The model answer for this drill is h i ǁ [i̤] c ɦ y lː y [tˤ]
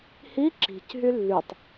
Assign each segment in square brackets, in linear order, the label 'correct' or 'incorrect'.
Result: correct, correct

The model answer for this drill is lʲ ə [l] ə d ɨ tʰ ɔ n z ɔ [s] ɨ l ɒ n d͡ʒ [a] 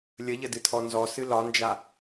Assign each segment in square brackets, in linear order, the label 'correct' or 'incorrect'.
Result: incorrect, correct, correct

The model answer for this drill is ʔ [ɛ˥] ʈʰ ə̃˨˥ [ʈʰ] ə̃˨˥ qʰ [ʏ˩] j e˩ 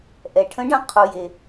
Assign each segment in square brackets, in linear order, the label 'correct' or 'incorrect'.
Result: incorrect, incorrect, incorrect

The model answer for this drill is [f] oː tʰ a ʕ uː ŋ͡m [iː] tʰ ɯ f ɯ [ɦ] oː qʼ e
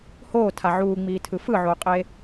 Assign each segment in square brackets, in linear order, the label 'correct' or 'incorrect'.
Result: incorrect, correct, incorrect

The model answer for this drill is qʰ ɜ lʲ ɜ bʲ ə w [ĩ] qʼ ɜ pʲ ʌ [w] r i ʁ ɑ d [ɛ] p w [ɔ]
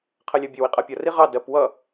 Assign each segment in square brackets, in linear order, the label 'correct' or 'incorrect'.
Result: incorrect, incorrect, incorrect, incorrect

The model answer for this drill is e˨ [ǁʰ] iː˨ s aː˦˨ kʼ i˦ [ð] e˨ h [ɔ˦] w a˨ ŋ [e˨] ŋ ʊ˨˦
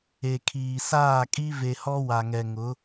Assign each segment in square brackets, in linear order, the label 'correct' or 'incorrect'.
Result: incorrect, incorrect, correct, incorrect

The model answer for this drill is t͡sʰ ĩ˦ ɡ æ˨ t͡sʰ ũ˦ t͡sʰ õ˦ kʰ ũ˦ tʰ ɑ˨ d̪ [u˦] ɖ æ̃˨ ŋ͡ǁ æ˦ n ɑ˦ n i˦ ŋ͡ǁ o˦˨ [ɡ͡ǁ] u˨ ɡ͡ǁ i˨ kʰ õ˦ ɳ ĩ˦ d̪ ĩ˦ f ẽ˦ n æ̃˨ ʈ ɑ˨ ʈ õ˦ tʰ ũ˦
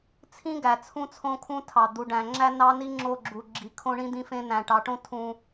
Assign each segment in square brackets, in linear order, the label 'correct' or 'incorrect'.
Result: incorrect, correct

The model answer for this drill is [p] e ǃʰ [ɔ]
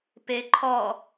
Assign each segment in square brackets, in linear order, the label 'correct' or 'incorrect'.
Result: correct, correct

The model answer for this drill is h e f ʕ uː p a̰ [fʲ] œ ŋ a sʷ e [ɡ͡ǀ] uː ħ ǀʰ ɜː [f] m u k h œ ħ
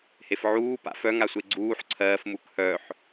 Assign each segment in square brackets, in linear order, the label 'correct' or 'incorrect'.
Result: incorrect, correct, correct

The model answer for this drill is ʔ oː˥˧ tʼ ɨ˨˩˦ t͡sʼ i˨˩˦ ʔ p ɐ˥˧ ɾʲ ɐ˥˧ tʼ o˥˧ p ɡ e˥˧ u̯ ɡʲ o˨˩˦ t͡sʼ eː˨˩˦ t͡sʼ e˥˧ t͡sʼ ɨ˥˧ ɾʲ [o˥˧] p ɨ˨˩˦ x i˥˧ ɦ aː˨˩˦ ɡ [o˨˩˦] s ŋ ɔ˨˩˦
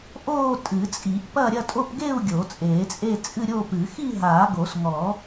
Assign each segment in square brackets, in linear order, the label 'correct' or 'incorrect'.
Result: correct, correct

